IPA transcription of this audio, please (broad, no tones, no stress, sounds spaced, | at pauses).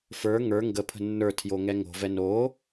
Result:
f ə˞ ŋ ə˞ ŋ ɡ ə pʰ ə̤ nː ə˞ tʰ j o ŋ ɛ ŋ o̤ v ɛ n o